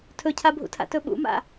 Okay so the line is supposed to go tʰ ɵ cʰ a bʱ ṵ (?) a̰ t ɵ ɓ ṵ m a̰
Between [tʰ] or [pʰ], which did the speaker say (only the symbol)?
tʰ